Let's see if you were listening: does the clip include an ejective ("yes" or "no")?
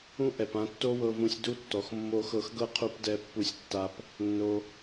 no